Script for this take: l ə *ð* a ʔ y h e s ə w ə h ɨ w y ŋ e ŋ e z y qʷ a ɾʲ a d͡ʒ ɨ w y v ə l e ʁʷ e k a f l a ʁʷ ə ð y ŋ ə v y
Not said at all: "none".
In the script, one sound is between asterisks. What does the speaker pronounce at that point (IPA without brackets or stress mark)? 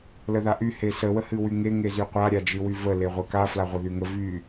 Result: ð